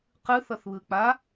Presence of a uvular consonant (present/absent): present